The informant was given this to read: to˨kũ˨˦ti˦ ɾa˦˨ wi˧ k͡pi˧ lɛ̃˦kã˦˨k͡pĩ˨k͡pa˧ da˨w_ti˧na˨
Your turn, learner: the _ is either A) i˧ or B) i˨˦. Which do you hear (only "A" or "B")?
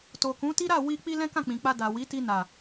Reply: B